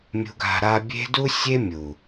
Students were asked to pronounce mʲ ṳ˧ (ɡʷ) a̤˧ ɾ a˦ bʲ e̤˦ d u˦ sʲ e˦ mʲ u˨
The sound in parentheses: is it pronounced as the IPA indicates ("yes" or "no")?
no